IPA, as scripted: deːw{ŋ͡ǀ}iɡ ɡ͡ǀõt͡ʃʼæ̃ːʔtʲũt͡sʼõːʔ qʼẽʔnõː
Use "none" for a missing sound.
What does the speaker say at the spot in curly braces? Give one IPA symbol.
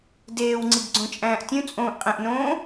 ŋ͡ǀ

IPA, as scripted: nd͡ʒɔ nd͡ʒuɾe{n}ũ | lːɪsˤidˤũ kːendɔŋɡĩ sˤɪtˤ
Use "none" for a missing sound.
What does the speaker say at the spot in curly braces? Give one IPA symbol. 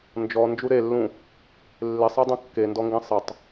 lː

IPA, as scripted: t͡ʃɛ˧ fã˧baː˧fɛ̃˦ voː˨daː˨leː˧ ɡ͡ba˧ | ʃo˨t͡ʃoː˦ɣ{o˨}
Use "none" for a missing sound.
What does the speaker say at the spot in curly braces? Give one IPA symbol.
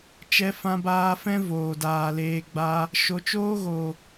o˨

